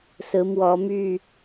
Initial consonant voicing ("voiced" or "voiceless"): voiceless